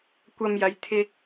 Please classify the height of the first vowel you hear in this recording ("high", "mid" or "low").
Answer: low